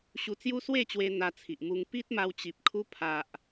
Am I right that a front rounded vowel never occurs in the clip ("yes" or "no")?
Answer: yes